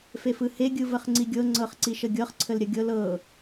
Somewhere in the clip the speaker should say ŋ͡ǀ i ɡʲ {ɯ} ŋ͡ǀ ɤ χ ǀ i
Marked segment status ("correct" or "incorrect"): incorrect